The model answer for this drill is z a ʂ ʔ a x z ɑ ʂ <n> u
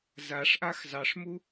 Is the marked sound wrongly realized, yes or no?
yes